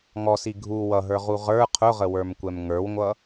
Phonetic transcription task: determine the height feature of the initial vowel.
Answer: mid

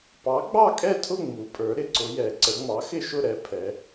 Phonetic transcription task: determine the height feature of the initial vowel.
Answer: low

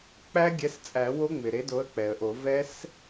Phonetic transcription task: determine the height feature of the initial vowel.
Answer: low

